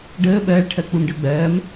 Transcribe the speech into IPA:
ɖ əː ɓ ɜː ɭ ʈʰ ɜ k͡p u m ɖ ɜ ɡ͡b ɜː m

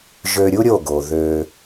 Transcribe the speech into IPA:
ʒ ø˧ ɾʲ u˦ ɾʲ o˦˨ ɡ o˨ ð ø˧

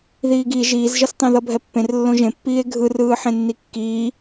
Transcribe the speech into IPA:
ð iː ɡ i ʒ iː z ʒ ʌ s tˤ ẽ ð ʌ bʱ ɛ pː ẽ r lː õ ʒ ẽ pː iː e̯ ɡʱ ɯ r ɯː ħ ẽ nː i kː iː

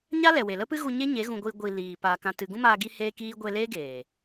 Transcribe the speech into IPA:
ɲ a˦ l ɛ˨ w e˨ l ə˦ p ɨ˦ ɣ u˧ ɲ e˦ ɲ e˨˦ ɣ ũ˧ ɡʷ i˧ ɡʷ i˨ l iː˨ p a˧ k ã˨ t ɨ˨ ɡ ũ˦ m aː˧ ɡ i˦ h eː˦ k iː˦ ɡʷ e˧ l eː˦ ɡ eː˨

